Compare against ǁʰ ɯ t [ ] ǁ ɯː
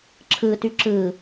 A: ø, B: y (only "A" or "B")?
B